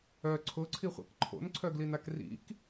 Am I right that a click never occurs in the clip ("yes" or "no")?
no